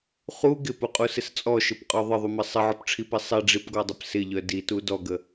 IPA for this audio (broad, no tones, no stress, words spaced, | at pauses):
χu ɡɪpuqʼusɪs t͡sʼɔʃɘpqʼɔ ðˤəðˤumɘ sˤɪʕɔpʈ͡ʂʰipi sˤiɖ͡ʐipɡɔdˤəp sɪʎœ ditu dɔɡə